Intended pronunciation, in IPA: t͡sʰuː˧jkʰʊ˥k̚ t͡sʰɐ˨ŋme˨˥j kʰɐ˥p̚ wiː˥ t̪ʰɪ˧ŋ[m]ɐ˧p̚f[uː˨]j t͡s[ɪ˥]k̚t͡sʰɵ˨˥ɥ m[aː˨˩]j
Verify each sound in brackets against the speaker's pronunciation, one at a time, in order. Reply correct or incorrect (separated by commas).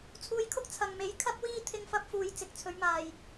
incorrect, correct, incorrect, correct